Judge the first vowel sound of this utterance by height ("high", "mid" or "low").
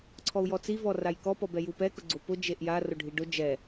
mid